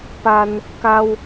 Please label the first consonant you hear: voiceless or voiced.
voiceless